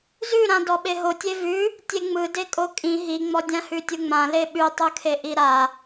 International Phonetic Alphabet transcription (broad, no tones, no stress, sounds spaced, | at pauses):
z ʉ ɾ ã d ɔ ɓ e ɦ o tʲ e v ʉ | tʲ e ŋ͡m ɯ d e kʼ o kʼ ĩ ɦ i ŋ͡m ɔ dʲ ã h ʉ tʲ ɯ ŋ͡m ã l e ɓ ʉ tˤ ɯ kʰ e ʔ i ɾ a